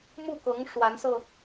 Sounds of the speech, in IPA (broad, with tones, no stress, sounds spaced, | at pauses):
m u˥˩ k ɤ˧˥ ŋ ʂ w a˧˥ n s ɤ˧